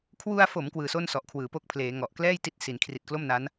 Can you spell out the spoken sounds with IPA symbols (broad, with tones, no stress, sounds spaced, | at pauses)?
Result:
kʰ w u˧ a̯ f o˩˦ m k w ɯː˧ s o˥˩ n s ɔ˨˩ ʔ kʰ w ɯː˩˦ p o˥˩ k̚ pʰ l eː˩˦ ŋ ɔ˨˩ ʔ k l ɛː˥˩ j t i˦˥ t̚ s i˩˦ n kʰ r i˨˩ t̚ k l o˥˩ m n a˦˥ n